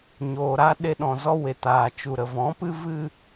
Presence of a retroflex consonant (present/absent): absent